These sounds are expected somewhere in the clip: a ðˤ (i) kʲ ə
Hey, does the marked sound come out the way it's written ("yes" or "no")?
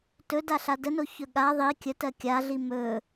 yes